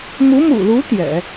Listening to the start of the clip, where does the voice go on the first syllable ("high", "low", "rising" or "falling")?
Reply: rising